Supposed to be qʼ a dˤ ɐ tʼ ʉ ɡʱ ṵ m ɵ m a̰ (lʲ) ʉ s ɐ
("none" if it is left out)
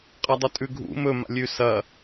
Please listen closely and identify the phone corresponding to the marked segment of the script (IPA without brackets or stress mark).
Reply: lʲ